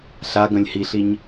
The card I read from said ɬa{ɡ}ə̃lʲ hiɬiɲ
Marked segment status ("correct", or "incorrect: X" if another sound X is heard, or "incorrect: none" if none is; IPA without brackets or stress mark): correct